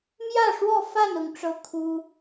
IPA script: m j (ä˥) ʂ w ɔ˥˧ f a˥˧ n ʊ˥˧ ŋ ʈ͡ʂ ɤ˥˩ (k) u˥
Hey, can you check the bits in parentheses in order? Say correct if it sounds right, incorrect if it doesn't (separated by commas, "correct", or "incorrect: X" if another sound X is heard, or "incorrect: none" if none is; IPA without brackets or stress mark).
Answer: incorrect: ä˥˧, incorrect: kʰ